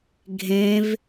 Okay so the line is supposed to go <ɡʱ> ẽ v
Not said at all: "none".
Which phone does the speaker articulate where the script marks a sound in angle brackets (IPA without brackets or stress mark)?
ɡʱ